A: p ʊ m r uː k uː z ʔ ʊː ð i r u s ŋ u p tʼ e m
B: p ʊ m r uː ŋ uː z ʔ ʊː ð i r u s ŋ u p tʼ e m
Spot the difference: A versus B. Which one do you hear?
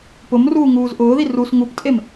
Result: B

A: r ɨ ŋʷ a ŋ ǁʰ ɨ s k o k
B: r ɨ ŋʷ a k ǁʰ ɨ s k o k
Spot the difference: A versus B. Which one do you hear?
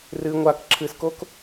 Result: B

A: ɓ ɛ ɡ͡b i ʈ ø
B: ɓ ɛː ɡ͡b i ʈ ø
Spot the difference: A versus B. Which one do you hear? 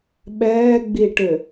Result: B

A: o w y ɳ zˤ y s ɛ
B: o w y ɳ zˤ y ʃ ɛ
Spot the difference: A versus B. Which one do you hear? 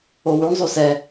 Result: A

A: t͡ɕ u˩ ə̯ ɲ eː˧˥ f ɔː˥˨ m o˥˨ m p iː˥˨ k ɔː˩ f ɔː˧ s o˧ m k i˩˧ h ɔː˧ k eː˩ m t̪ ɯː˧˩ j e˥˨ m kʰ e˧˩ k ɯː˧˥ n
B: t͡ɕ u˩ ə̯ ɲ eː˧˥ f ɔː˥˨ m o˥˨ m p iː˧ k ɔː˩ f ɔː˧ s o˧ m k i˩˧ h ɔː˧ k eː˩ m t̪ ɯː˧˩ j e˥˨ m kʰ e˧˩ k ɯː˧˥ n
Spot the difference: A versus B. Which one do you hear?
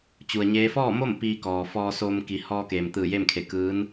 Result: B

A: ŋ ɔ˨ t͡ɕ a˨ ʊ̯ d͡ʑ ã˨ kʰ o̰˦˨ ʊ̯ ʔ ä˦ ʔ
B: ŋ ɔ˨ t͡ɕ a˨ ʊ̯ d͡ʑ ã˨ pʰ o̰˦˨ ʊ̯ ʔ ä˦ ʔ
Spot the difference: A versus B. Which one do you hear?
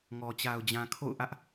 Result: A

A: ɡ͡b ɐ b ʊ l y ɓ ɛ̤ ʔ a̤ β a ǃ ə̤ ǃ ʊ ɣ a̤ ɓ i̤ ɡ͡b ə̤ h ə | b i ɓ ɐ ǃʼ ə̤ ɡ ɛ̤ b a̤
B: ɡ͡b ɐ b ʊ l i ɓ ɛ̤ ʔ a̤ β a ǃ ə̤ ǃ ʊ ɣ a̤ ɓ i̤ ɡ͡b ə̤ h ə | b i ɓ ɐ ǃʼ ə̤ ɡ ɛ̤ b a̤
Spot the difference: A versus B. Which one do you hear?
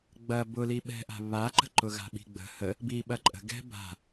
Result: B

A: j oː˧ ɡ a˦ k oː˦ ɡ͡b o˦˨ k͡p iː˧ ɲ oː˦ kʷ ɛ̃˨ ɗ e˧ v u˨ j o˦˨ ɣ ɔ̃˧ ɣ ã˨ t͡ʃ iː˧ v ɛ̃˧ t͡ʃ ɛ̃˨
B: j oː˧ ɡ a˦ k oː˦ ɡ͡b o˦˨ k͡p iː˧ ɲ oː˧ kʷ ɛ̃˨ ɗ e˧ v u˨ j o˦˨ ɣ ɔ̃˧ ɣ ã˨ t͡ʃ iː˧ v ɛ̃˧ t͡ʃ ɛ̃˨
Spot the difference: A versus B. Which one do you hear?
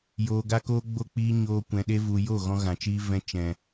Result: B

